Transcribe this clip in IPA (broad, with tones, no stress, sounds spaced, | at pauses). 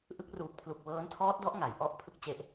ʔ ɯ˦˥ k̚ r uː˨˩ k̚ pʰ l u˨˩ k̚ w ɤː˦˥ n tʰ ɔː˦˥ t̚ d ɔ˦˥ ʔ ŋ a˩˦ j ʔ ɔ˦˥ ʔ pʰ ɯ˥˩ k̚ t͡ɕ e˦˥ ʔ